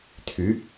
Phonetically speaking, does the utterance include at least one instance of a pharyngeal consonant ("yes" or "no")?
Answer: no